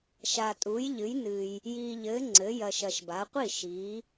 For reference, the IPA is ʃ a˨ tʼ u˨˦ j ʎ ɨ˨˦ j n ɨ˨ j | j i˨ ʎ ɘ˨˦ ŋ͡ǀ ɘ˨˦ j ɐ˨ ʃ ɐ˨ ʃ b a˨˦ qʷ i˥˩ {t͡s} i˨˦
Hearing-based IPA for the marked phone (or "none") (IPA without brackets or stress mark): ʃ